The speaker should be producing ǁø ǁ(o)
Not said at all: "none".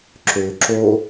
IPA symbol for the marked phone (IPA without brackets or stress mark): o